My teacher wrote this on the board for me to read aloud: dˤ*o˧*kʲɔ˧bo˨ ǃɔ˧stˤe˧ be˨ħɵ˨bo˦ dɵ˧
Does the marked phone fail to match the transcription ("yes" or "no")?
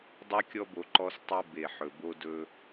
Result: no